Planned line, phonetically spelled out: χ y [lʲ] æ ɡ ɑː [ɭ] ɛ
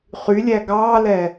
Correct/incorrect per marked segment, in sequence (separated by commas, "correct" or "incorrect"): correct, incorrect